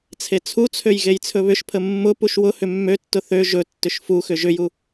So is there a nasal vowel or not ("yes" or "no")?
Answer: no